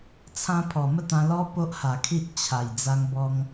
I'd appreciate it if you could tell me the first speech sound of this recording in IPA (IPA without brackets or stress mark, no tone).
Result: t͡sʰ